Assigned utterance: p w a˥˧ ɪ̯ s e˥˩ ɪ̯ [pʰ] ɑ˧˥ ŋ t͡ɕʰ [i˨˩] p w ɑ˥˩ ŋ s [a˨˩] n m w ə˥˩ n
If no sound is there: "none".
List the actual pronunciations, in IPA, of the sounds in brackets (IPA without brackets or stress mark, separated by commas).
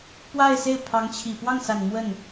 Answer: pʰ, i˨˩, a˨˩